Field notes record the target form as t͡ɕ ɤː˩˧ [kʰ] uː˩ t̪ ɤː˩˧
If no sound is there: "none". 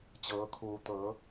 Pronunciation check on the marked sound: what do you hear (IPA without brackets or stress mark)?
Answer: kʰ